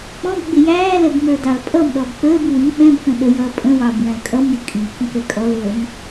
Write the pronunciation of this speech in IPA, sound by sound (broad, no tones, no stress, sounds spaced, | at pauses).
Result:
k͡p ɔ̃ b ɡ͡b ɪ j æː l ɛ b m ə˞ d ɑ l pʼ ʌ m ɗ ɔ b k͡p əː b w i ɓ ɛ̃ b k ə̃ ɗ ə j ʌː pʼ ə̃ w ɑ b w æ̃ l kʼ ʌ m j ɪ kʼ i k ə̃ k ɛ kʼ ɔ l əː m